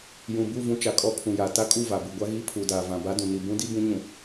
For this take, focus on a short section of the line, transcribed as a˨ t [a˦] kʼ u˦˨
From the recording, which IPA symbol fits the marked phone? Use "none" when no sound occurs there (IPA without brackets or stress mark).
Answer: a˦